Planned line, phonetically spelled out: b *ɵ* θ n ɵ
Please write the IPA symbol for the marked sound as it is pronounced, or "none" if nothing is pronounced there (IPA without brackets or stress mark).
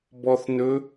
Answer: ɔ